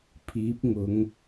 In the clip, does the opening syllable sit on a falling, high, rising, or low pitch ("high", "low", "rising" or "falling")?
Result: rising